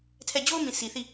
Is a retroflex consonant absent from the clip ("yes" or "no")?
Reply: yes